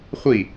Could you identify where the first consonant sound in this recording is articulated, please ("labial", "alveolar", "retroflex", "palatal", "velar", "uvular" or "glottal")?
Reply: uvular